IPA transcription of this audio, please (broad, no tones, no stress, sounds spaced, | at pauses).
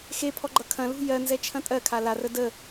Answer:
x e pʰ ɔ ɡ͡ǃ ʌ kʰ ɐ̃ l ṳ j ɜ n z ɛ t͡ʃʰ ɐ̃ tʼ ɜ kʰ a l a r ə d ə